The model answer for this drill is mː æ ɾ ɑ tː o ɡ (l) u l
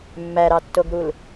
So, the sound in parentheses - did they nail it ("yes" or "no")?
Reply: no